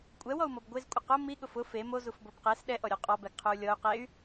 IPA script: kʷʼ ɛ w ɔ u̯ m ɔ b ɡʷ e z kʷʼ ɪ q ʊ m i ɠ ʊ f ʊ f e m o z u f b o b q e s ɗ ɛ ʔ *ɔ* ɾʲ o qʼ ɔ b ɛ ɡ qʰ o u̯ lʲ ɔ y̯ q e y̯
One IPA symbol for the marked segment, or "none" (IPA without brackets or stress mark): ɔ